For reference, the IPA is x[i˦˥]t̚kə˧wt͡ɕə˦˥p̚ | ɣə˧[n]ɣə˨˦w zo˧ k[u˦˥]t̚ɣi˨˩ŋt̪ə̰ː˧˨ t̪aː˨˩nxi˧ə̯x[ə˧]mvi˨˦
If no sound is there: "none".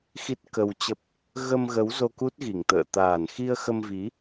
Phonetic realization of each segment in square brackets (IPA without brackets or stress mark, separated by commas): i˦˥, m, u˦˥, ə˧